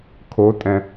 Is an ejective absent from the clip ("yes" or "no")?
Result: no